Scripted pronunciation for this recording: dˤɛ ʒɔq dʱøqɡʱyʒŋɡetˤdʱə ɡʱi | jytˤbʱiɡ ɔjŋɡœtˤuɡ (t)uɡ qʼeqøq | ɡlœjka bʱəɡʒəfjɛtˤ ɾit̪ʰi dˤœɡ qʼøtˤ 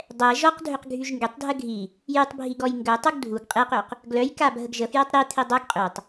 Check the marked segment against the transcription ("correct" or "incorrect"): incorrect